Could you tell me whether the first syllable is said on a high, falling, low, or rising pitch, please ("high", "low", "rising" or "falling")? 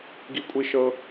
high